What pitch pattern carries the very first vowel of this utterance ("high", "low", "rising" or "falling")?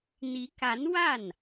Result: rising